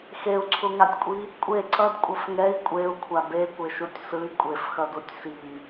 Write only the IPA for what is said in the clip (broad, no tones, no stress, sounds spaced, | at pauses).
x e u̯ ǀʰ u ŋ a tʲ kʷʼ i | kʷʼ e ǀ ʌ d kʷʼ ʌ f ŋ ɛ i̯ kʷʼ e u̯ kʷʰ a b e kʷ e ʃ u tʲ s ɯ i̯ kʷʼ e f x ʌ d u tʲ s i